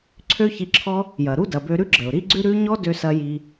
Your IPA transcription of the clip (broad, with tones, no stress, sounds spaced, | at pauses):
ǀʰ ø˥ ç i˧ ǁʰ ɔ˥ | j ɐ˩ ɾ u˥ d ɐ˩ b ø˧ ɾ ʉ˥ ɡ͡ǁ ə˩ ʊ̯ ɾ i˥ ɡ͡ǀ ʉ˥ ɾ ʉ˥ ɲ ɔ˥ d ø˧ s ɐ˧ j i˧